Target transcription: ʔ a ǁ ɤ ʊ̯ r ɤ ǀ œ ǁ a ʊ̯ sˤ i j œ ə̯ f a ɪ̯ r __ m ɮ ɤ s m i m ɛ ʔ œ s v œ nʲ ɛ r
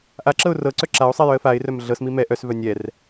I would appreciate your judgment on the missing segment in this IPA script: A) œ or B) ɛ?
A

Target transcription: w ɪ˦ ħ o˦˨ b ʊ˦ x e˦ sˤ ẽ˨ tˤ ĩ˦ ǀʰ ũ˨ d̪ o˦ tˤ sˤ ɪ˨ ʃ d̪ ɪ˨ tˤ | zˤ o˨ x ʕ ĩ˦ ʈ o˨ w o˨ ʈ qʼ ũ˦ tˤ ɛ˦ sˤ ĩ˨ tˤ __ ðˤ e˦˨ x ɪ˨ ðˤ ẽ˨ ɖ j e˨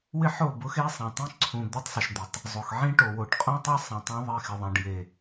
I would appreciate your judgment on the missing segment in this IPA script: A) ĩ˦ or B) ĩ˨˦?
A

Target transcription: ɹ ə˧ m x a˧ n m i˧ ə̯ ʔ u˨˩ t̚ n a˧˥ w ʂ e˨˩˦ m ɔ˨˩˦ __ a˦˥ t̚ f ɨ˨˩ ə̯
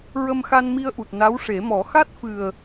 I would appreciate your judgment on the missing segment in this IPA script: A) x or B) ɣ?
A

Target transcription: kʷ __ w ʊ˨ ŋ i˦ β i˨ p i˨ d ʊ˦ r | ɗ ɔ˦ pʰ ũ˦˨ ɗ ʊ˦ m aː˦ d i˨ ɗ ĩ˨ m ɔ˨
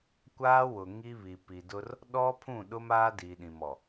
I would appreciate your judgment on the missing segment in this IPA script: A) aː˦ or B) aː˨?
A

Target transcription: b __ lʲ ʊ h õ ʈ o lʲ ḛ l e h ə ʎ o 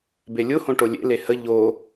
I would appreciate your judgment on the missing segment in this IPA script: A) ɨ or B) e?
B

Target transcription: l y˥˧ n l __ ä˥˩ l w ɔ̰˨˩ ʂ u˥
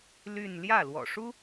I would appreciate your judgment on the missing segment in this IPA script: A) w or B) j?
B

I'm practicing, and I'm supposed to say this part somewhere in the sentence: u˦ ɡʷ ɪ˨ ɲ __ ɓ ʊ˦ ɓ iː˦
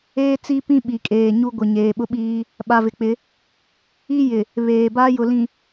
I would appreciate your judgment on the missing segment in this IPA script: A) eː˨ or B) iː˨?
A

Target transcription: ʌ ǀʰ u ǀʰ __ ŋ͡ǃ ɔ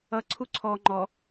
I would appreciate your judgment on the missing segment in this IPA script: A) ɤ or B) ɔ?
B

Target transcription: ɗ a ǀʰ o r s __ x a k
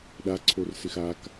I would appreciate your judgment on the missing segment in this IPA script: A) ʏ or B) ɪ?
B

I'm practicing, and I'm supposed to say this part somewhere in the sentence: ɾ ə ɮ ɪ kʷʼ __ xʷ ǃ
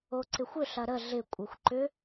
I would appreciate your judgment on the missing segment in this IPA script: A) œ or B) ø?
A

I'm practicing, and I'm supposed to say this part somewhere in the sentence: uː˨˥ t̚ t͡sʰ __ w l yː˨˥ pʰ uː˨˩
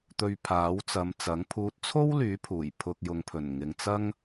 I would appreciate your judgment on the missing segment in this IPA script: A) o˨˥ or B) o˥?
B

